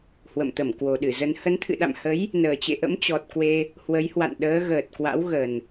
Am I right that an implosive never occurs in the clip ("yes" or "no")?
no